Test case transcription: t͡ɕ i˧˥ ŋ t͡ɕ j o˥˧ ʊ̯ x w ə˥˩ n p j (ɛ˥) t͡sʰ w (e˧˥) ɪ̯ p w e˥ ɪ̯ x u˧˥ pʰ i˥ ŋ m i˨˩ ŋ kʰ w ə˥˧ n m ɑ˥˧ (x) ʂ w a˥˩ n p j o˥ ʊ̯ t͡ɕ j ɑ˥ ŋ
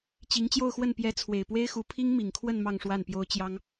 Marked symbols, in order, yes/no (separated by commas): no, no, no